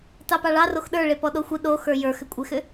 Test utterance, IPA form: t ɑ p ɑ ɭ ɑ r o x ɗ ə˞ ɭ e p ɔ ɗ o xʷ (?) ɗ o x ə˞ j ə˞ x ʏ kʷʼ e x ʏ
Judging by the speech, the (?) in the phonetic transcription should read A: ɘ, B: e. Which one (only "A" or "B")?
B